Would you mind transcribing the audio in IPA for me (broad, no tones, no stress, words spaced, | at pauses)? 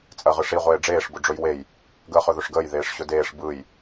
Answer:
t͡sʼɜʁɯʂi ʁʷeːɖ͡ʐeːʂ bʊɖ͡ʐɵjwej | ɡəːχɵðɵʂɡəːj ðeːʂɕɵdeːʂ bɯj